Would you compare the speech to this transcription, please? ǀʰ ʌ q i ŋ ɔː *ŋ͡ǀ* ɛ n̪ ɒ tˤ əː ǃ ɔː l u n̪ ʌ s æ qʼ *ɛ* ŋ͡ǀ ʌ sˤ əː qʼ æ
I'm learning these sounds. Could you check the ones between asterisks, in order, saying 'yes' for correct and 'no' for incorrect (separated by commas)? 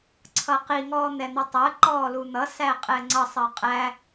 no, yes